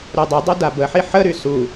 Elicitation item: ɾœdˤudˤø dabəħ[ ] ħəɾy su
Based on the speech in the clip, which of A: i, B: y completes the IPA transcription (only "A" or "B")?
A